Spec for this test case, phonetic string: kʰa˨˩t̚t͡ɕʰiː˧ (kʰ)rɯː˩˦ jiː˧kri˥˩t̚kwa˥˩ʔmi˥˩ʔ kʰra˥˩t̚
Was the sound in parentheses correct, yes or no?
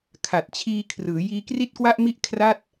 yes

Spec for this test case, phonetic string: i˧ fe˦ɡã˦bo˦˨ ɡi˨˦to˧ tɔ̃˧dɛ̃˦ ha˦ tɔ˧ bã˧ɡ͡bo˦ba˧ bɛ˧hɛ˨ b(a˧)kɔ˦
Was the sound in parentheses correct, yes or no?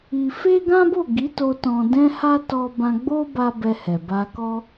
yes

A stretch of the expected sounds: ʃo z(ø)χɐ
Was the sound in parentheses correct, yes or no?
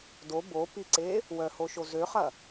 yes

